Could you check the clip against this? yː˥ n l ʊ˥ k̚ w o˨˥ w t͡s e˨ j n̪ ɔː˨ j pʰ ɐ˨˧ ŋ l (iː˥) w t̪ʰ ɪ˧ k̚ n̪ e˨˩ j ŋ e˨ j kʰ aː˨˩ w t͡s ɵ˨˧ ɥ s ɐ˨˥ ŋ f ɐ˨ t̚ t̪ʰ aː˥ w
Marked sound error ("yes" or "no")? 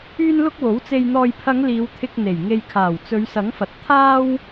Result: yes